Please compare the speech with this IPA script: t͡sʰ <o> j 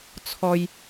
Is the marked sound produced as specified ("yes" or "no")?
no